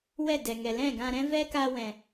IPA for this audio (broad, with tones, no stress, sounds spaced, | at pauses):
w ɛ˦˨ d ɛ˨ ŋ ɛ˨ l ɛ̃˦˨ ɡ ã˧ ɾ ɛ̃˦ v ɛ˦ k a˧ w ɛ̃˨